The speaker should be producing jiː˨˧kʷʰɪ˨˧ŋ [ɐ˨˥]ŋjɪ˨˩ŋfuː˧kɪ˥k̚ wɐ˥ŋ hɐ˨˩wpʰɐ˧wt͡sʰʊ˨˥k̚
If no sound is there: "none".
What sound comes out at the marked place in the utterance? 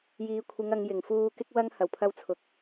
ɐ˨˧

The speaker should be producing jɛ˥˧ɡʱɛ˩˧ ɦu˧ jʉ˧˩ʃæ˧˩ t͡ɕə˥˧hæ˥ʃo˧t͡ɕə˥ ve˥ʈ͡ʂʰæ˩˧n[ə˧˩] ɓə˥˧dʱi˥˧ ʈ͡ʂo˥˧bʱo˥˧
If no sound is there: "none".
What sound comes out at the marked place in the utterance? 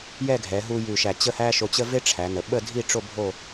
ə˩˧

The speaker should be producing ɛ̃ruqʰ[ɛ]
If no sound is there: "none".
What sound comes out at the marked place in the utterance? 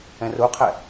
ɛ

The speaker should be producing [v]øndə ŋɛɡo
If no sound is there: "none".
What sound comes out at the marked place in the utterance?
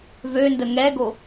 v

